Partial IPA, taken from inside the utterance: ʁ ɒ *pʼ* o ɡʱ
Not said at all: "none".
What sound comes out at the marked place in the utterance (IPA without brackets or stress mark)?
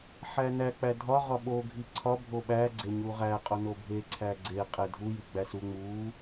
ɓ